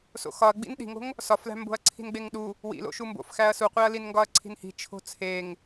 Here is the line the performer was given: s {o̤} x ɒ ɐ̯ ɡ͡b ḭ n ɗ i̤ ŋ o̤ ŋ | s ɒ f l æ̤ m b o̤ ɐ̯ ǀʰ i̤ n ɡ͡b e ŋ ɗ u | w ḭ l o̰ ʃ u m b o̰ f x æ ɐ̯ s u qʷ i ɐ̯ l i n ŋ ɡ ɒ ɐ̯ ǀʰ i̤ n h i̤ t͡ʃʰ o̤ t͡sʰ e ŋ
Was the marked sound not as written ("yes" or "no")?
yes